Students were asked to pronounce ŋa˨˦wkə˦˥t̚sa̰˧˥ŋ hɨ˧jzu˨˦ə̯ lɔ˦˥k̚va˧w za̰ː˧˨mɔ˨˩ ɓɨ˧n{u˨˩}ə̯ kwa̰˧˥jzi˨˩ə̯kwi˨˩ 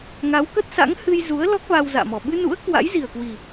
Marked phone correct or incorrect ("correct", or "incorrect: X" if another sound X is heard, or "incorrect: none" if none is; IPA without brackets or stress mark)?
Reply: incorrect: ṵ˧˥